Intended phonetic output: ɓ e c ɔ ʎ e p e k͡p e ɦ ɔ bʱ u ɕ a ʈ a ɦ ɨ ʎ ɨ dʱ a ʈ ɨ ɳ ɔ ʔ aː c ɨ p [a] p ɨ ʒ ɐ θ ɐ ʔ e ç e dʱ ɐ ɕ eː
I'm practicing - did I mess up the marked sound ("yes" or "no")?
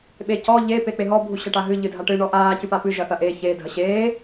no